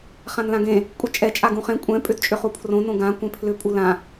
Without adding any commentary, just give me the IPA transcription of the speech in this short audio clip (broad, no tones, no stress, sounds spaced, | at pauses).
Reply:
χ ã n l ã ɡ ẽ | kʷʼ ɛ t͡ʃʼ ɛ t͡ʃʼ a ɡ ũ χ ẽ kʷʼ ɛ̃ pʼ ʏ d t͡ʃʼ ʏ χ u pʰ r õ n õ ɡ ã kʷ ẽ pʰ l ʏ pʼ u l ã